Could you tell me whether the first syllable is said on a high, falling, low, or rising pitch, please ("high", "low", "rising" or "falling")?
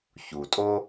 low